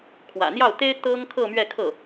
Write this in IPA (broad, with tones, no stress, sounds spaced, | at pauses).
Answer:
kʰ w ä̰˨˩ n̪ j ɑ˥˩ ʊ̯ t̪ e˥ ɪ̯ t̪ ɤ˥ ŋ kʰ ɤ˥˧ m ɥ ɛ˥˧ kʰ ɤ˥˩